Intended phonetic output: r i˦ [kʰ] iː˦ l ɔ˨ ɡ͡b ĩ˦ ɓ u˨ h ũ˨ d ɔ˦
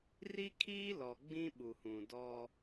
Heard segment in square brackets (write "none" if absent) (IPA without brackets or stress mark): kʰ